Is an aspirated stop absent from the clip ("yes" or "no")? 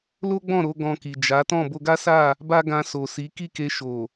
yes